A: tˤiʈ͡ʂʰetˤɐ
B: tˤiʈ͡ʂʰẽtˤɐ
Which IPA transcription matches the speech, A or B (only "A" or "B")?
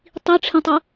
B